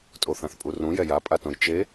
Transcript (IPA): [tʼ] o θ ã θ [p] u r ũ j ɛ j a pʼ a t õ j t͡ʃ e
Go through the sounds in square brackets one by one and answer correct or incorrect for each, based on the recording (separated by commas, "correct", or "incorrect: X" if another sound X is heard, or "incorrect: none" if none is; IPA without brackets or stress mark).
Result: correct, incorrect: pʼ